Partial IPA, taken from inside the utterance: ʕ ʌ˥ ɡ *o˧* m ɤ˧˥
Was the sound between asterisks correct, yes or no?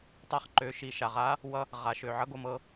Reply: yes